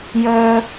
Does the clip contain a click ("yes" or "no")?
no